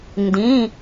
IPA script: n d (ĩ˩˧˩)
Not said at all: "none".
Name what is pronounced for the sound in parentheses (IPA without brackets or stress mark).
ĩ˩˧˩